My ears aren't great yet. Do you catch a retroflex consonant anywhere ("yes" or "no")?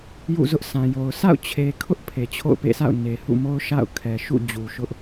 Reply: no